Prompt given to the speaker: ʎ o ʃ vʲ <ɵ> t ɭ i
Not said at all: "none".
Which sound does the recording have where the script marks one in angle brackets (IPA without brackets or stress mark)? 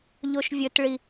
ɵ